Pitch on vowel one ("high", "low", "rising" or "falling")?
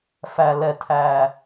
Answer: low